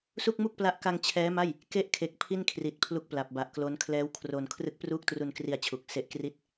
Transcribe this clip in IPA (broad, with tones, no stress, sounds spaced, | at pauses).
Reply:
s u˥˩ k̚ m u˥˩ k̚ p l a˦˥ ʔ k a˧ ŋ t͡ɕʰ ɛː˦˥ m a˥˩ j | k e˥˩ ʔ kʰ e˨˩ k̚ pʰ i˥˩ n kʰ r i˨˩ t̚ pʰ l u˦˥ k̚ p l a˨˩ p̚ b a˨˩ ʔ k l o˦˥ n kʰ l ɛː˦˥ w kʰ r o˧ n kʰ r ɯ˦˥ k̚ p r uː˥˩ k̚ t r u˧ n k r i˧ a̯ t͡ɕʰ u˨˩ k̚ s e˦˥ ʔ k r i˥˩ t̚